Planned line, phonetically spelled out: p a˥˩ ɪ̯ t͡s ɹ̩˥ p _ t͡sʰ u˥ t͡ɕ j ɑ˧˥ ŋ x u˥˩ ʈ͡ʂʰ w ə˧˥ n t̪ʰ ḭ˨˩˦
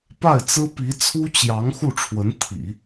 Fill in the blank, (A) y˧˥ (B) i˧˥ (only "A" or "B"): B